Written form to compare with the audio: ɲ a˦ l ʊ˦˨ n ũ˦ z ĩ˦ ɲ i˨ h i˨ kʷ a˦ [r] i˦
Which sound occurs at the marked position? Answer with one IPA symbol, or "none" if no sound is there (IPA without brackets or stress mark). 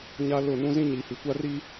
r